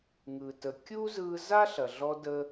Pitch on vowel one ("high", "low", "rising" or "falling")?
low